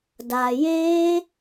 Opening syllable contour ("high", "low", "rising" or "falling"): low